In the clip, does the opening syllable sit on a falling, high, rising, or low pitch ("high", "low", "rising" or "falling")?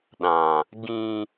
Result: low